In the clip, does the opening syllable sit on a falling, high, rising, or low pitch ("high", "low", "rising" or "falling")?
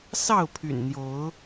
falling